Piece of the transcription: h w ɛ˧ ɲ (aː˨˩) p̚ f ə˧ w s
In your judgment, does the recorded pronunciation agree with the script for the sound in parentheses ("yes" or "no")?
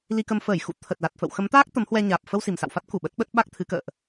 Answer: yes